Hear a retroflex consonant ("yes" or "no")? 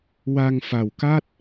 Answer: no